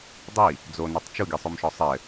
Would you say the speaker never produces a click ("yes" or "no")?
yes